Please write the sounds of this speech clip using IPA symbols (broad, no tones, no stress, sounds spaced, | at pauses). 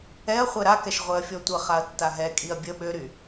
ɛ ɐ̯ χʷ ɛ ɾ a k ɛ ʃ ʁʷ ɛ ɐ̯ fʲ ɔ tʷ ə χ a ɐ̯ tː a ɦ ɛ kʼ i ɐ̯ bʲ ə ɓ ø ɾ y